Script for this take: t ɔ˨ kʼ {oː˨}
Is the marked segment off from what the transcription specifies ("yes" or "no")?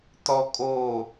no